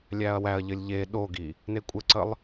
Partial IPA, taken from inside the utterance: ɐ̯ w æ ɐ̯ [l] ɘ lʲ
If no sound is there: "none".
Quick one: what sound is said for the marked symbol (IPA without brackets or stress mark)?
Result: ʎ